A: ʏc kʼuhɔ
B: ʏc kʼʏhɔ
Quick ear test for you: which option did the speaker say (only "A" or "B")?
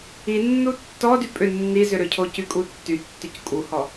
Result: A